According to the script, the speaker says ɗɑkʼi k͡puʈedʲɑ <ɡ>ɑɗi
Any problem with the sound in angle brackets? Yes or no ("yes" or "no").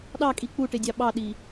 yes